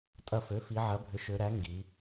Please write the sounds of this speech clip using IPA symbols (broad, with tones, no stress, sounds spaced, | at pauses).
tʼ ɐ˧˩ f ø˩˥ f i˩˧ ʕ ɐ˩˥ bʱ ʏ˩˥ ʃ ø˩˧ ɾ æ˩˥ ŋ ɡ i˩˧